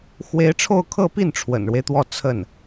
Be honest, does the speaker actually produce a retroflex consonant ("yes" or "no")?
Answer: yes